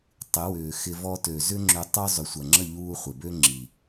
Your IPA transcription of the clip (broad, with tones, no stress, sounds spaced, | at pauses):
tˤ ɪ˨˦ w ʏː˨ x ɪ˧ v ɔ˧ t ø˨ z ʏ˦ ŋ͡ǁ ʏ˧ tˤ ʏ˦ zˤ ʏ˨ sʷ ɐ˨ ŋ͡ǁ ə˦˨ ʎ uː˧ χʷ ɪ˨ b ø˦ ŋ͡ǁ i˨